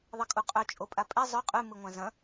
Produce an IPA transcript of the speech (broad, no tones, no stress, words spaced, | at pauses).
ðˤekʼuqʼɵ t͡ʃʼopʼapʼe zˤɵ qʼʉ mɨŋʷãzɐ̃